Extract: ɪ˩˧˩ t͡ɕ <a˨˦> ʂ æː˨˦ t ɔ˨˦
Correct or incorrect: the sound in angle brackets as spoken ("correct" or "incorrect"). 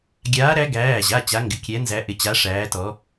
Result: correct